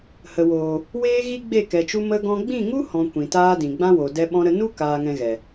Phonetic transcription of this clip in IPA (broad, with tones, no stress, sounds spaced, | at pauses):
h ə˨ w oː˨ | w eː˦ ɣ i˦ ɡ͡b e˦˨ k ɛ˨ t͡ʃ u˧ m ə˦ ɡ ɔ̃˦ ɡ͡b ĩ˦˨ ŋ u˦ h ɔ̃˨ kʷ ĩ˨ t aː˦ d ĩ˨ ɡ͡b ã˦ w o˨ d ɛ˧ ɓ ɔ̃˧ ɾ ə˧ n u˦ k aː˨ ŋ ɛ̃˨ ɣ ɛ˨